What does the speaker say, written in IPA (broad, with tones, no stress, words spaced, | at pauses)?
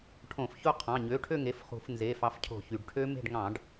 ʈʰõ˧˩˧f ço˦˨qʰɑ̃˩˧˩ ɲø˩˧˩ʈʰø˦˨ŋe˩˧˩f χṳ˧˩˧f nze˩˧˩fɑ˨˦fcʰo̤˧˩˧ çy˩ɖʈʰø˦˥ me̤˦˨ɖ ŋɑ̃˧˩˧ɖ